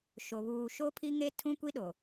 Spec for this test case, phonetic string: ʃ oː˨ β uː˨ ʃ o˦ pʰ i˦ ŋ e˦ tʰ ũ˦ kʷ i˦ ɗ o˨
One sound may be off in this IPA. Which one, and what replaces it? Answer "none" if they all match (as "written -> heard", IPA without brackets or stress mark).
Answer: oː˨ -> o˨